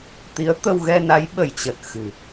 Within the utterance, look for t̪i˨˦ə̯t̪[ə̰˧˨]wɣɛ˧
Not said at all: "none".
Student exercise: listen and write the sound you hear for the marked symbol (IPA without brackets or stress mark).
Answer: ə˧